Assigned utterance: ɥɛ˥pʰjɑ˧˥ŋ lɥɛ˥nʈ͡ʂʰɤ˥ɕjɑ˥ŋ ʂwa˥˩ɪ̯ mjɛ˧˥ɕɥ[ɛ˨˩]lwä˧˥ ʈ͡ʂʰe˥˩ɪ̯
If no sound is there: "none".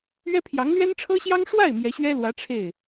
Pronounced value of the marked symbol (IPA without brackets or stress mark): ɛ˥